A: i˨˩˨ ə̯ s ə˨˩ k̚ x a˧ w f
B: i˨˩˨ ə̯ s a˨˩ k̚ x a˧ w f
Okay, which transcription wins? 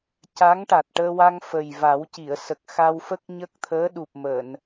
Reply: A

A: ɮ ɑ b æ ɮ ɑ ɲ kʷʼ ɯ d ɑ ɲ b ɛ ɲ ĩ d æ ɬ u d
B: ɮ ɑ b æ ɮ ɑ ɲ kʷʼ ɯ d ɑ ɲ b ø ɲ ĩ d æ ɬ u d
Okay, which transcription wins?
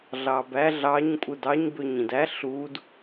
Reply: B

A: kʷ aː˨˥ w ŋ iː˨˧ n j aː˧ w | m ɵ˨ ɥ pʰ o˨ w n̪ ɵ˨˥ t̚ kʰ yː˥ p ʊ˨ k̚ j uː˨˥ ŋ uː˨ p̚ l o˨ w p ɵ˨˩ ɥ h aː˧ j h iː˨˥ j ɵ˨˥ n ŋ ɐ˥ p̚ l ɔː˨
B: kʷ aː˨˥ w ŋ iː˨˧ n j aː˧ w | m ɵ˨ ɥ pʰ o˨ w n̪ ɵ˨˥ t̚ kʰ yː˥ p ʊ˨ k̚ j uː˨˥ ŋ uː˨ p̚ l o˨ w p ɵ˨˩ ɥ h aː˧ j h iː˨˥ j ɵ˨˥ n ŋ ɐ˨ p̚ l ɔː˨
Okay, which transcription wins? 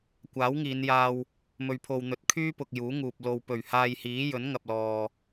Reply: B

